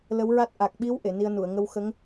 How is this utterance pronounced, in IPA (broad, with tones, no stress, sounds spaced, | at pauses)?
l ə˧˥ w ɹ a˦˥ t̚ ʔ a˨˩ k̚ ɓ i˧˥ w ʔ e˨˩˨ n i˧ ə̯ n u˨˩˨ ə̯ ŋ ə˧ w x ə˧˥ ŋ